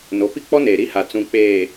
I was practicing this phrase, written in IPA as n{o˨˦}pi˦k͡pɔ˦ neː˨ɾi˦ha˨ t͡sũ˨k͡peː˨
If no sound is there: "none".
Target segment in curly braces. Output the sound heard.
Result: o˨˦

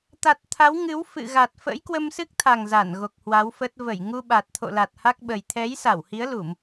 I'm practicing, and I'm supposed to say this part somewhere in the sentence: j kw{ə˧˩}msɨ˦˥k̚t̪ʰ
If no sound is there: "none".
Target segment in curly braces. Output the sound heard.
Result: ə˧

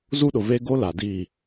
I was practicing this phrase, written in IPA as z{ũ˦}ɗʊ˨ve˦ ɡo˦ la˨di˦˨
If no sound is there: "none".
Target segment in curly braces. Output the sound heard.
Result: u˦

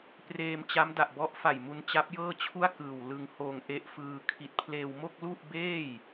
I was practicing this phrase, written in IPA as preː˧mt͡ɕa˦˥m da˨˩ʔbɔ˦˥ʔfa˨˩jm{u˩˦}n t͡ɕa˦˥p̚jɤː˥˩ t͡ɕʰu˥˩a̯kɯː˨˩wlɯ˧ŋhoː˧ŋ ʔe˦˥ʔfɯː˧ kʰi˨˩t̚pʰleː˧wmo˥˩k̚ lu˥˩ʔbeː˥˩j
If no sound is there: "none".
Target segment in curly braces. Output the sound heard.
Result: u˧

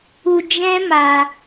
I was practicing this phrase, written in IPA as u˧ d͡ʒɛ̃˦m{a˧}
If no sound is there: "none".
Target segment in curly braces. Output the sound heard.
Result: a˧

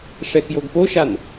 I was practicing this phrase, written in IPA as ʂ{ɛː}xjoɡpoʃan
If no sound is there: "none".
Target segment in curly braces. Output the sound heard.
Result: ɛ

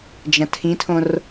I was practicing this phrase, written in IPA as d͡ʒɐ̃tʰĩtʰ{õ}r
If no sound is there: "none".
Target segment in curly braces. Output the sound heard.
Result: õ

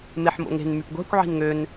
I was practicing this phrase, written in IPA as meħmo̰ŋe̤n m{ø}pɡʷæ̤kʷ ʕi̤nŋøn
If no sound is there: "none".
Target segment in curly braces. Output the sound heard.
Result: y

